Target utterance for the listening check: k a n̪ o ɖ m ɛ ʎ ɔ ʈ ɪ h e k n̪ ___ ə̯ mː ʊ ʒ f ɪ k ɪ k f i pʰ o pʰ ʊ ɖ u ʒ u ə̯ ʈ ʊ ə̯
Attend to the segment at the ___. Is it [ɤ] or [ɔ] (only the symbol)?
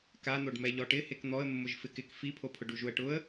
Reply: ɔ